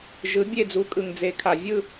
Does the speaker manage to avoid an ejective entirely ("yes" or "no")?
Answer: no